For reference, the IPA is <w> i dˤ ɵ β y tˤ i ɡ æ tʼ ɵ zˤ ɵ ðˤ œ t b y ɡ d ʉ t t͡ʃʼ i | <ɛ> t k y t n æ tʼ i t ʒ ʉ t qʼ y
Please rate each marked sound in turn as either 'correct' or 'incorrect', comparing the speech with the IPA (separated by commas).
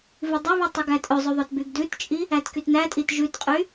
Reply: incorrect, incorrect